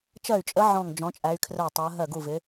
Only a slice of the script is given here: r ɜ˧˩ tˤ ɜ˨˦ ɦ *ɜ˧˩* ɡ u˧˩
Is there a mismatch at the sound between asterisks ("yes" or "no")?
no